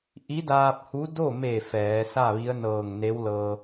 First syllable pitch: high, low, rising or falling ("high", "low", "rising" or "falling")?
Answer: rising